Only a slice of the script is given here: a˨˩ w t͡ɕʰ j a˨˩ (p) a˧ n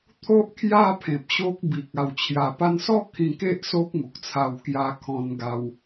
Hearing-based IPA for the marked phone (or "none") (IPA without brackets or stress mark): p